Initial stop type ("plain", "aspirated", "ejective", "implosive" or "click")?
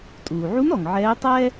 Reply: ejective